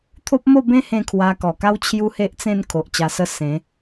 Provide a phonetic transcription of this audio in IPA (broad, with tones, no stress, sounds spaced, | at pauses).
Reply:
t̪ʰ o˦ p̚ m o˥˧ b ẽ˦ h ẽ˥˧ kʰ w a˧ k ɔ˨˩ k a˦ w t͡ɕʰ j u˦ h e˦ ʔ t͡s ẽ˥˧ n kʰ o˨ ʔ t͡ɕ a˧ s ə˥˧ s ẽ˨˦